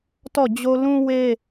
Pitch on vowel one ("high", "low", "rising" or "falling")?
falling